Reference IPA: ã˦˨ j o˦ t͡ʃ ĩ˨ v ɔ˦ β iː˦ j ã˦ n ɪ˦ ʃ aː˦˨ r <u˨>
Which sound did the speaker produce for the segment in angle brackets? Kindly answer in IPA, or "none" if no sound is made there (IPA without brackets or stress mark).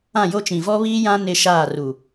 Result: u˨